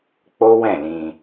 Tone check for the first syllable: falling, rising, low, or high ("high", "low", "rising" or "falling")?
high